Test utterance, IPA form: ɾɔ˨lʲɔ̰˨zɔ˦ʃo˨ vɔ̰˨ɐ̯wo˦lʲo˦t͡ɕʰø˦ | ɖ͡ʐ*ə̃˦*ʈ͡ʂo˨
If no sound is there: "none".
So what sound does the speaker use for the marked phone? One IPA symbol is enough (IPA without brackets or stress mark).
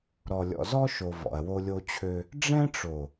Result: ɛ̃˦